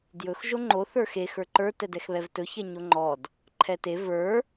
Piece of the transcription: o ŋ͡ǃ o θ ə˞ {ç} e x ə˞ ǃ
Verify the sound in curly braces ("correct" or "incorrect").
incorrect